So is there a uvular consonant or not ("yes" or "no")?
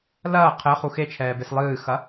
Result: yes